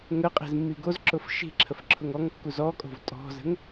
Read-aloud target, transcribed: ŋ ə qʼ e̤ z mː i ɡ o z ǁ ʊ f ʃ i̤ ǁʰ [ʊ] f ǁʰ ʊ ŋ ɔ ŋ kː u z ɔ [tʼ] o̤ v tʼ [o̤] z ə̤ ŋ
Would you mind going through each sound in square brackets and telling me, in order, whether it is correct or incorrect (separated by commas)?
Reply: incorrect, incorrect, incorrect